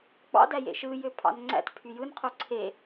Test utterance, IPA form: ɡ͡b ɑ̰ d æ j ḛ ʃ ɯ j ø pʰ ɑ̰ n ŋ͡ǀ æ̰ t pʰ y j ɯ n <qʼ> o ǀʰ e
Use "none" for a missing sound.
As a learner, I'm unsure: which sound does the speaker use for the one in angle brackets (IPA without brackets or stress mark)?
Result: qʰ